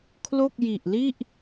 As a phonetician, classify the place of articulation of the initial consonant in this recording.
velar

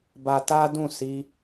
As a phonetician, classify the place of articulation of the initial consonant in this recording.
labial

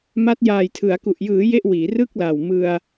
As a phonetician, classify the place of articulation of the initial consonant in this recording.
labial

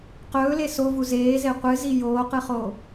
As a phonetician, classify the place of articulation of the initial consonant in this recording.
uvular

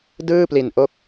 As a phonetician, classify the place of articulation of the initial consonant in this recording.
alveolar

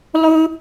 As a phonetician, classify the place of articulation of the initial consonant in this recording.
alveolar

